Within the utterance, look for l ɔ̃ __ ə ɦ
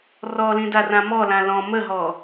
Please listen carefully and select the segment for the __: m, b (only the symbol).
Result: m